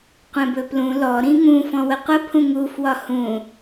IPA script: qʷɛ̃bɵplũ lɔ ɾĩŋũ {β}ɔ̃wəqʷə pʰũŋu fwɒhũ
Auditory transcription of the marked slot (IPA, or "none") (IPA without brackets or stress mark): f